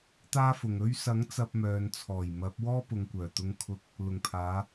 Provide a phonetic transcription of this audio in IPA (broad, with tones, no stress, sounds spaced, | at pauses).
t̪ aː˥ f ʊ˨ ŋ ɵ˧ ɥ s ɐ˨˥ ŋ t͡s ɐ˧ p̚ m œː˨ n t͡sʰ ɔː˨˩ j m ɐ˨˥ p̚ w ɔː˥ p ʊ˨ ŋ kʷ œː˨˩ t̪ ʊ˧ ŋ kʰ ʊ˧ k̚ | l ʊ˨˩ ŋ pʰ aː˨˧